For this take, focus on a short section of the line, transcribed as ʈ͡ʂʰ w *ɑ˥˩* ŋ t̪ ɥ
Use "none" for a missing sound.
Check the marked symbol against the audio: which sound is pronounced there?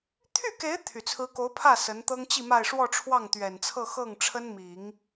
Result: ɑ˥˩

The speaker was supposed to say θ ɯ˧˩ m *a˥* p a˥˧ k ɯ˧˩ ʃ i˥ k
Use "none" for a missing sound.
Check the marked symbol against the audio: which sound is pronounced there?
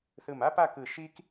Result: a˥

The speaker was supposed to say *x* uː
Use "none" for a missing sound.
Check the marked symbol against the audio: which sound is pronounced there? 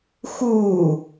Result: x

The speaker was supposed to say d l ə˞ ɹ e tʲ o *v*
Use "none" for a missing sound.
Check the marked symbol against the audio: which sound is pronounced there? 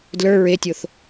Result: θ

